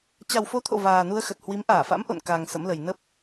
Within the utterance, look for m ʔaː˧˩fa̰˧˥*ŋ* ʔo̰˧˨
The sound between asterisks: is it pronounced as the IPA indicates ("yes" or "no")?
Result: no